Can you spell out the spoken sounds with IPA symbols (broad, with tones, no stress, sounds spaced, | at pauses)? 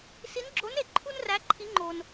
s i˧˥ n ɡ͡ǁ o˧˥ n e˩˧ ǃʰ u˥ n r æ˧˥ ǃʰ i˧˥ ŋ͡ǃ o˧ n